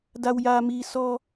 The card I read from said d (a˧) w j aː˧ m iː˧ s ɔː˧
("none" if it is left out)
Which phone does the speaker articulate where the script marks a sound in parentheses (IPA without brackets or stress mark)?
a˧